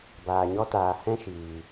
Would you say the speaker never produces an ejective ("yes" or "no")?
yes